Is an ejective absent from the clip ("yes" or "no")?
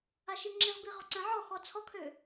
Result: yes